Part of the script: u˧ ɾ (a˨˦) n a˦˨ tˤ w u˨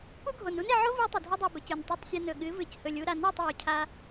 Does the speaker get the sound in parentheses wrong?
yes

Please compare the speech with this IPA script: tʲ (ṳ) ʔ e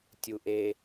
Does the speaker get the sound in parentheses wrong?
yes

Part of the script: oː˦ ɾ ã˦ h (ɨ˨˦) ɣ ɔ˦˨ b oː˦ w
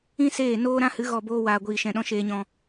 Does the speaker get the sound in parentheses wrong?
no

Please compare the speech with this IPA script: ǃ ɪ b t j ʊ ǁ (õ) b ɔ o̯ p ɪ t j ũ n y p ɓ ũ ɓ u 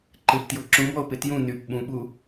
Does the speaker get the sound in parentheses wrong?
yes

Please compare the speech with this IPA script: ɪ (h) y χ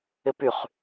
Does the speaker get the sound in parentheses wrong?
yes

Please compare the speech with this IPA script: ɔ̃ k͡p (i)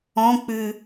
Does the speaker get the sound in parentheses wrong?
yes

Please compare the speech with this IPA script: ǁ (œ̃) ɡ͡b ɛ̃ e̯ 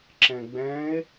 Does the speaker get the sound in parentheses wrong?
yes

